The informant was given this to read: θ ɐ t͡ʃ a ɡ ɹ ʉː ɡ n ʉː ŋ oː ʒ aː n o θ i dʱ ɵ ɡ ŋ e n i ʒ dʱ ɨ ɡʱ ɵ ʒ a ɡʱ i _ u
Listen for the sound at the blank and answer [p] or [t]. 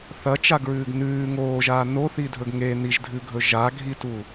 t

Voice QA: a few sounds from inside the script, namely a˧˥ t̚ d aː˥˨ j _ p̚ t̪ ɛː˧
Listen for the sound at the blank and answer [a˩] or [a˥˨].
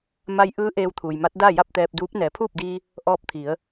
a˥˨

